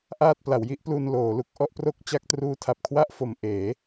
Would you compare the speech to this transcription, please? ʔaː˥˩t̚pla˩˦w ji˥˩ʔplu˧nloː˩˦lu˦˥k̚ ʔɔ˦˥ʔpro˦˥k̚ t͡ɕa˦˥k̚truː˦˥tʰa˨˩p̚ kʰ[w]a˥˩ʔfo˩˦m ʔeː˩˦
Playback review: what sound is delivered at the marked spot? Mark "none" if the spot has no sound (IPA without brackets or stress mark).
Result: w